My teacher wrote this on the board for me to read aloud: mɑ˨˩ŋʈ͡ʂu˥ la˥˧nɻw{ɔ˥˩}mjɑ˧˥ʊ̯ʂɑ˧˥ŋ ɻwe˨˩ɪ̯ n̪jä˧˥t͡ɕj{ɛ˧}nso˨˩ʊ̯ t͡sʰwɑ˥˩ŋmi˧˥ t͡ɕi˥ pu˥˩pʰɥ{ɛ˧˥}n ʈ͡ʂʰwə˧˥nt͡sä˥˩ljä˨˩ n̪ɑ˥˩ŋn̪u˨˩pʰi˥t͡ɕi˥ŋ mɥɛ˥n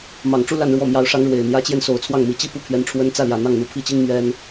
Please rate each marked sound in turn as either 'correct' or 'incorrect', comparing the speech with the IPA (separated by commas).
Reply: correct, correct, correct